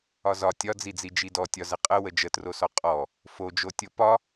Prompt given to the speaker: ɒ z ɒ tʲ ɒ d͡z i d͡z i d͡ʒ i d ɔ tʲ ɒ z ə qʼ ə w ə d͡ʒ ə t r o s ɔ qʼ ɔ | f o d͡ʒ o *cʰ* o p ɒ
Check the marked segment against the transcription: incorrect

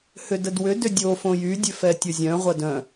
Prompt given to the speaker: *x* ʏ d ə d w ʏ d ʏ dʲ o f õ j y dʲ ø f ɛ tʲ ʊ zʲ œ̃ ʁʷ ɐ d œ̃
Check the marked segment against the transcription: incorrect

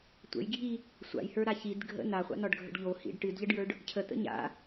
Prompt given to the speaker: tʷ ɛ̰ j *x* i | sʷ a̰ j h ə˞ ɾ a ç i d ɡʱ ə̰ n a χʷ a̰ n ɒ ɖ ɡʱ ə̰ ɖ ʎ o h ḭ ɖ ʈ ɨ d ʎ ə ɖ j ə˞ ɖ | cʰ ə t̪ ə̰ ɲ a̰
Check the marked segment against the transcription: incorrect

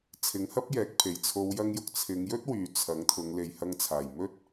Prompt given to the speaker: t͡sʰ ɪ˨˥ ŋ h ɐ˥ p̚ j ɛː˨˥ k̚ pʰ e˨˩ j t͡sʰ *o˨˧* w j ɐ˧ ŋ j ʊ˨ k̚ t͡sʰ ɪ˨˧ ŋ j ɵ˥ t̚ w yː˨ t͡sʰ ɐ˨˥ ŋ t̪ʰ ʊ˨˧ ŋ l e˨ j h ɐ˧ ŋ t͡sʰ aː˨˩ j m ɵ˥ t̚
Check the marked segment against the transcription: correct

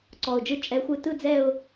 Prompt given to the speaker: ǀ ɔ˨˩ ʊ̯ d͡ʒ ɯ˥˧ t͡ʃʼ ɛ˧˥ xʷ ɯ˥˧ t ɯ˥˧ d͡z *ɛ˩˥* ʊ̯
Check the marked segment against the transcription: incorrect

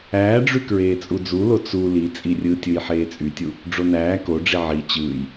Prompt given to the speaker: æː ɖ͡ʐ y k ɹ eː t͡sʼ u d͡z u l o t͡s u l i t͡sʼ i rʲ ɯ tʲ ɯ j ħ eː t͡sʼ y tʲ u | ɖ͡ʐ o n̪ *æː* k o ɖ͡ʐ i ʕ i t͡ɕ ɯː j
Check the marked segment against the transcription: correct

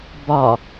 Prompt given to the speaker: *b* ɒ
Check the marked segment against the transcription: correct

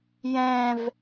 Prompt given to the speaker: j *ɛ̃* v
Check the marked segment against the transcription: correct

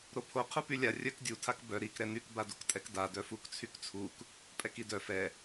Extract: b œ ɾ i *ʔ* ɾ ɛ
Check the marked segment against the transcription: incorrect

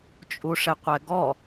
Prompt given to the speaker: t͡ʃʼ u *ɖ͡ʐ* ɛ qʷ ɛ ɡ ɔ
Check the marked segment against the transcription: incorrect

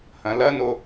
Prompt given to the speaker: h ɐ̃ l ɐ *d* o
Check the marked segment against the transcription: incorrect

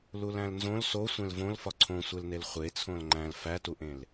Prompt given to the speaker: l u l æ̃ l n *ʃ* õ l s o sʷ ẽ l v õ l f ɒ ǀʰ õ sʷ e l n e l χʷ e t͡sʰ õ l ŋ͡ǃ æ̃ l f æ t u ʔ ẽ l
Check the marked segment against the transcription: incorrect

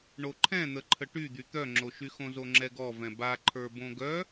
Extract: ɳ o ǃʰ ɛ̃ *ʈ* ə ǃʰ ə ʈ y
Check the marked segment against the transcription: incorrect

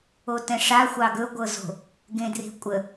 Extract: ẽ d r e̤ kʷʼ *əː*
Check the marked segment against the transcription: incorrect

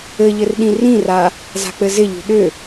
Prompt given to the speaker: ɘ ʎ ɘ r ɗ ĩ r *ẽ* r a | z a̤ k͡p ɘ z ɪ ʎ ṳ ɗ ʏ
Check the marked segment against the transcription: incorrect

